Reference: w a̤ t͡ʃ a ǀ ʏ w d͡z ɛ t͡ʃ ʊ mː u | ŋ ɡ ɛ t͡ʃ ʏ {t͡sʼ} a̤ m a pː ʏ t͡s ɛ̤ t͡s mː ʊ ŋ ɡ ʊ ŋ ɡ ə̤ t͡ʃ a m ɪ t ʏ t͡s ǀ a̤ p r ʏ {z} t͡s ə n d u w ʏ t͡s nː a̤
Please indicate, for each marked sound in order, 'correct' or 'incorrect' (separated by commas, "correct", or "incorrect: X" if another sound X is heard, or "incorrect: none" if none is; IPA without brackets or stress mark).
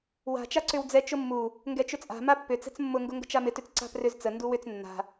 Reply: correct, correct